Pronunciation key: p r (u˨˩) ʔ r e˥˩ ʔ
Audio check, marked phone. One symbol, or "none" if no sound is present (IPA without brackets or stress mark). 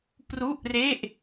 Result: u˥˩